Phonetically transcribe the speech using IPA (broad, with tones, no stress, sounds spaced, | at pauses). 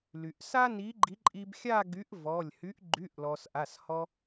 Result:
l y˩ ʔ s a˥ n i˨˥ ɡ͡ǃ i˨˥ ǃʼ i˧ b xʲ a˥˧ ɡ y˨˥ ʔ v ɔ˩˧˩ lʲ h y˨˥ ʔ ɡ͡ǃ y˩˧˩ ʔ l ɔ˩ s ʔ a˩˧˩ s h ɔ˧